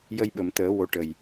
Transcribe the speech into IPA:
j ə˧ j ɓ ə˨˩˨ m t̪ əː˨˩˦ w o˧˥ ʈ ə˨˩ j

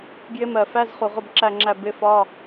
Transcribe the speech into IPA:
ɡ j ɪ˧˥ m ɜ˨˩ f æ˧˥˧ z χ u˨˩ ʁ ʊ˦˨ b ǁ æ˦˨ ŋ͡ǁ æ˦˨ b ɪ˧˥ f ɒ˧˥˧

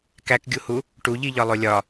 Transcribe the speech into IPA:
k æ k ɡʲ u h u | ʈ u ʎ i ʎ ɒ lˠ o lʲ ɒ

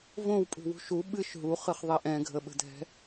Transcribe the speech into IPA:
v õ w pʼ ṳ w ṳ ʃ u ɓ ɨ ʃ ɦ u χ ɨ χ ðˤ ɛ ʔ ɛ̃ ɡʱ ə ɓ ə̤ dʱ ɛ̤

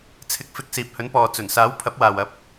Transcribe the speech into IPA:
t͡sʰ ɪ˨ k̚ f ɪ˨ k̚ s iː˨ p̚ h ɵ˨˥ n p ɔː˨ t͡s ɵ˨˩ n s aː˨˥ w pʰ ɐ˨˥ p̚ w aː˨ w ɐ˨˥ p̚

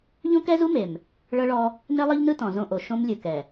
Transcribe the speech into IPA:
ʎ õ˦ k ɛ˦ z u˦ m e˨ m | ɭ ɤ˦ ɭ ɔ˦ | n e˦ lˠ ɤ˦ ʎ n ɯ˦ t ɔ̃˨ z õ˦ ʔ o˨ ʃ õ˦ m lʲ ɯ˨ k ɛ˨

